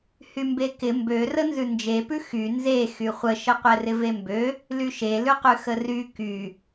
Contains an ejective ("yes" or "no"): no